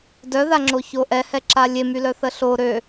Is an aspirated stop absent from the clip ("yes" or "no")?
yes